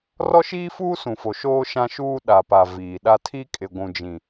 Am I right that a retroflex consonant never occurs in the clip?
yes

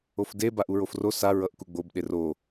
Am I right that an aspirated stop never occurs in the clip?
yes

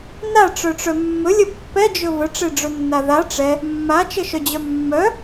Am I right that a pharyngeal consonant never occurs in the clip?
yes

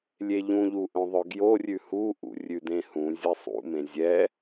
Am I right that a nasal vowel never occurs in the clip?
no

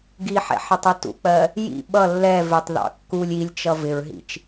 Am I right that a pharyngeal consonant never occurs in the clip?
no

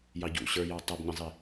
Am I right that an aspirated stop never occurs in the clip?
yes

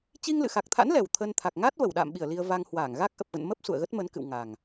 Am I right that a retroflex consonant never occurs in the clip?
yes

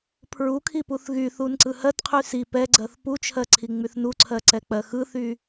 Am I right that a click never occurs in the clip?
no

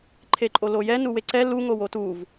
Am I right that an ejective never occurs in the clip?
no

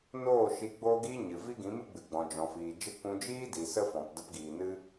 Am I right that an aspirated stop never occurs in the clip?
yes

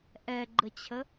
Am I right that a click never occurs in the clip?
no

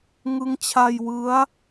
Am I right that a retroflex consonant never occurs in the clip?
yes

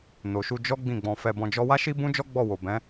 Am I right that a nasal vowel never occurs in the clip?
no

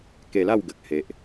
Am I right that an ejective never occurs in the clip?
yes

